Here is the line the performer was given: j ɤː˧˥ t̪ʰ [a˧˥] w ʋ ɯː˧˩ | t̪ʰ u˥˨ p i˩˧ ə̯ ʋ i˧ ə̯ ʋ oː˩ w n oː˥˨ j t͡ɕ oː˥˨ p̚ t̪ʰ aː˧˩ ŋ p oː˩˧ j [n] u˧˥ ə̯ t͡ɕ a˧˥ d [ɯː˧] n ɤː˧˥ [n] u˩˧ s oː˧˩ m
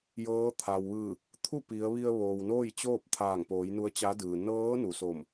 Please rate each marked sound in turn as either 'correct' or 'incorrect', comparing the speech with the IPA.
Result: incorrect, correct, incorrect, correct

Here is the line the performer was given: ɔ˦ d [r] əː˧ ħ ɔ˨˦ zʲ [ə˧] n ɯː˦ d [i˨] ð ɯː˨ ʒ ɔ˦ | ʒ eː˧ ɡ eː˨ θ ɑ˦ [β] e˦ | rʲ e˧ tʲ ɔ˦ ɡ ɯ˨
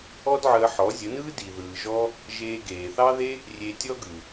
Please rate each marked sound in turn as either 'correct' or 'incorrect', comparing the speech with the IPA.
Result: incorrect, incorrect, correct, incorrect

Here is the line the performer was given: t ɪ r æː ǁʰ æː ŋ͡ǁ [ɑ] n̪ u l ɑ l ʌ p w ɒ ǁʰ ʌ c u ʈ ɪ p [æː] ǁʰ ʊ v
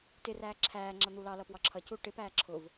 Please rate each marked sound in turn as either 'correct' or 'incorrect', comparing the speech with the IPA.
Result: incorrect, correct

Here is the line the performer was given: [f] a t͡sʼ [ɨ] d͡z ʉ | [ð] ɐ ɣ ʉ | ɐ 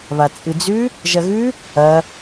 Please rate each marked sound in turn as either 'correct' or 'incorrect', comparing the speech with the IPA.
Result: incorrect, correct, incorrect

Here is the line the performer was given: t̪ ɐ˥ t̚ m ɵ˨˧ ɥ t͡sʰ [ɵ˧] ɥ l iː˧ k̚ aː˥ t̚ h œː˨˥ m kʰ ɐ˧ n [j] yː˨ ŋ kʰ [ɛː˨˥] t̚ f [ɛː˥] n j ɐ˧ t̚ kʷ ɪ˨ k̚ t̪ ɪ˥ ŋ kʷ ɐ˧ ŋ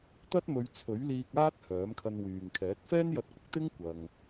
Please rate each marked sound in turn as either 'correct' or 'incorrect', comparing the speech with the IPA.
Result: incorrect, incorrect, correct, correct

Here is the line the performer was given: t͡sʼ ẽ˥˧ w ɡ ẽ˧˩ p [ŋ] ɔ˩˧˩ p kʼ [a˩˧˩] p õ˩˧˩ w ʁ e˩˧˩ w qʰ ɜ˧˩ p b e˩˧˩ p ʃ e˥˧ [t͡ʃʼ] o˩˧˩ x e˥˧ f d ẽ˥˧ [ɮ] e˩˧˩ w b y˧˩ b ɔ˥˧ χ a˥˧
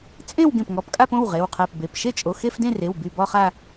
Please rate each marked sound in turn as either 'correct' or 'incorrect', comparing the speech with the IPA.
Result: correct, incorrect, correct, incorrect

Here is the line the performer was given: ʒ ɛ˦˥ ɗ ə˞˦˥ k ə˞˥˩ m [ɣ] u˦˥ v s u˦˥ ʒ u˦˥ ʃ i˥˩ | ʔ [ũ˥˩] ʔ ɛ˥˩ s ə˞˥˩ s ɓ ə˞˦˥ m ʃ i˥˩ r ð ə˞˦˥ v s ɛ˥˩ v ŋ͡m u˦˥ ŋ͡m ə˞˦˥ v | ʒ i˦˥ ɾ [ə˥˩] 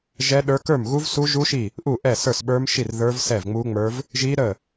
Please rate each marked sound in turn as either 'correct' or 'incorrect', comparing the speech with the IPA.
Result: correct, incorrect, correct

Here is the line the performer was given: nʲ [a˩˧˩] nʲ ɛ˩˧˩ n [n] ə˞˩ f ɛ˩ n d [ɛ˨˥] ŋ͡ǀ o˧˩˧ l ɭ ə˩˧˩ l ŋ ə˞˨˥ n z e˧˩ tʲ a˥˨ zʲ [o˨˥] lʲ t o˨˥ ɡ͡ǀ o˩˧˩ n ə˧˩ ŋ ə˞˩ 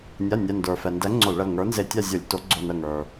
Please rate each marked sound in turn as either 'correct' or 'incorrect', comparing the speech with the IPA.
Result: correct, incorrect, correct, incorrect

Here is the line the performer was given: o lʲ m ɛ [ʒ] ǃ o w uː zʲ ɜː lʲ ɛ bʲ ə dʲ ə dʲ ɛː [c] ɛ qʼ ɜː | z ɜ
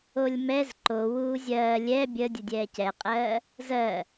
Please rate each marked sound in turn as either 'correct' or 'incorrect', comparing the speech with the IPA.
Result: incorrect, correct

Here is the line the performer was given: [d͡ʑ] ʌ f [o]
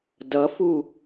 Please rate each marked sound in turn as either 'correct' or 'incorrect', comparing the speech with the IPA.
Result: incorrect, incorrect

